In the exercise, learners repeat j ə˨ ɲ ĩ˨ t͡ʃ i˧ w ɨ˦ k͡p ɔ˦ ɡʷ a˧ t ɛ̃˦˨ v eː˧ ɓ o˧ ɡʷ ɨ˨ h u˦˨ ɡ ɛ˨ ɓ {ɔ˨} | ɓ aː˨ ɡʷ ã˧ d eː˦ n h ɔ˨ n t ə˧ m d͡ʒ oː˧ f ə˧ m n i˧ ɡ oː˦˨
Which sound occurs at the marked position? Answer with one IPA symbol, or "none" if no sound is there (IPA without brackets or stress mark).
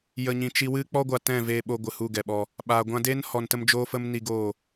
ɔ˧